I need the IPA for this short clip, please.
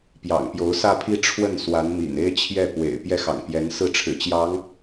p j ɑ̰˨˩ ŋ p j o˧˥ ʊ̯ s ä˥˧ pʰ i˥˧ ʈ͡ʂʰ w ə˥˩ n s w a˧˥ n m ḭ˨˩ n e˥ ɪ̯ t͡ɕʰ j ɛ˥˩ p w ḛ˨˩ ɪ̯ p j ɛ˥˩ x ɑ̰˨˩ ŋ p j ɛ˧˥ n s ɹ̩˥˩ ʈ͡ʂʰ ɻ̩˨˩ t͡ɕ j ɑ˧˥ ŋ

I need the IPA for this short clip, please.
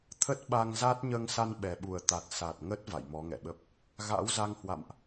t̪ʰ ə˦˥ t̚ ɓ a˧ ŋ z a˦˥ t̚ ɲ əː˧ ŋ s a˧ n ɓ ɛ˨˩ ɓ u˨˩ ə̯ t̪ a˨˩ t̚ s a˨˩ t̚ ŋ ə˦˥ t̚ v a̰˧˨ j m ɔ˨˦ ŋ ɛ̰˧˨ ɓ ə˦˥ p̚ | ɣ a̰˧˥ w z a˧ ŋ h w a̰˧˨ m ʔ

